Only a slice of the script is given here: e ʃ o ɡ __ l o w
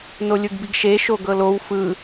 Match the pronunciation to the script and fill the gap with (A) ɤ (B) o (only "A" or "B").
A